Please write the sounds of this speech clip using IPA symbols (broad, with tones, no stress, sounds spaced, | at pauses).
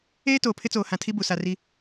eː˦ t oː˨ pʰ ɪ˦ t͡s oː˨ h ã˨ tʰ i˦ b u˨ s a˨ r i˦